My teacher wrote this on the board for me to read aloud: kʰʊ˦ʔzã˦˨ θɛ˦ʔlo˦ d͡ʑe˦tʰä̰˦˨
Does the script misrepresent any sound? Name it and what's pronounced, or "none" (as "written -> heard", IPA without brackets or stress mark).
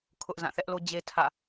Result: none